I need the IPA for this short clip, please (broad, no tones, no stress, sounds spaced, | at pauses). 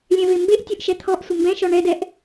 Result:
lʲ ɛ̃ v e m b e ʔ tʲ o ʔ ʃ ɛ t̪ʰ ɔ ʔ sʷ ɪ m b ɛ̃ ʃ ɔ ɳ ɛ d ɛ ʔ